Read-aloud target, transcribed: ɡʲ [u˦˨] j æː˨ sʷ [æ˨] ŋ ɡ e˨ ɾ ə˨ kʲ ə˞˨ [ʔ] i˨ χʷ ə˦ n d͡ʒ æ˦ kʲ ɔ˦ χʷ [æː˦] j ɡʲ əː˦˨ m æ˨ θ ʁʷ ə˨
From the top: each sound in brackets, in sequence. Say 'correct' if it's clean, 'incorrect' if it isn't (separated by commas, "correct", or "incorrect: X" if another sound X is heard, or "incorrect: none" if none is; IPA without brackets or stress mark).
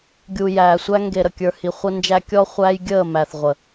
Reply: incorrect: u˨, incorrect: æ˦, incorrect: h, correct